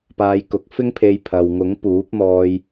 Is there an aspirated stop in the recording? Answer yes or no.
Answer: yes